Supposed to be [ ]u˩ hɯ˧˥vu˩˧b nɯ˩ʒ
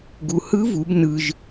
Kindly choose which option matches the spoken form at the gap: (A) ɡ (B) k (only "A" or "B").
A